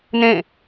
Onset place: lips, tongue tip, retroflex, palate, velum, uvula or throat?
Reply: tongue tip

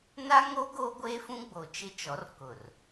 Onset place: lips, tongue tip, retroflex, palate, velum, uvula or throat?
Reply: tongue tip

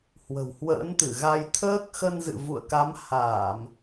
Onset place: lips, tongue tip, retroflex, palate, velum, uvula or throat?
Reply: throat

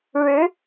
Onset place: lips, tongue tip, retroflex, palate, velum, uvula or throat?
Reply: retroflex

